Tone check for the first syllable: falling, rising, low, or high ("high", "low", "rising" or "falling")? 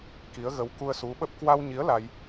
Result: rising